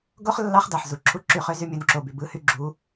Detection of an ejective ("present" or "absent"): absent